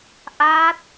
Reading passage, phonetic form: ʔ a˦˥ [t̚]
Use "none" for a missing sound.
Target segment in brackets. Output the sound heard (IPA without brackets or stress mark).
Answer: t̚